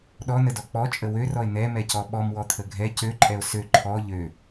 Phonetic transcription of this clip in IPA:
ɗɔnədɔ k͡pɔt͡ʃʼə wørɔe̯ n̪ɛmɛ cɔɓɔmwɔt̪ʰə ɡʱɛ cøǃʼɛo̯ sø ǃʰɔ ʎø

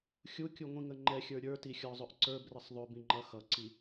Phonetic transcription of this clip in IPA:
xʲukʲuŋʷĩŋə ŋ͡ǃɛxʲə˞ ɾʲə˞tixʲɔzˤʊʔ ǀə˞brəsˤ ðˤʊbĩŋ͡ǃʌ xʌǀi

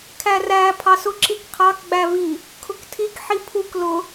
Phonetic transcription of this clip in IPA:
kʰæræ pʰɑsʊ ǁikqʰɑk ɡ͡bævi | kʰʊktʰik ħipʰuk lʊ

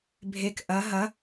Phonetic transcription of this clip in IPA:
bʱek ʔɐ ɦɐ

